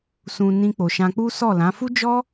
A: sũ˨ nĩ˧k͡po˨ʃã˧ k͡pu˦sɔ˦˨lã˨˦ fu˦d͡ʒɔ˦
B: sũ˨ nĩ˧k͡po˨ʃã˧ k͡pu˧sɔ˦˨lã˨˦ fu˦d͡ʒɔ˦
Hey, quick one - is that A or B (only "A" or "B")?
A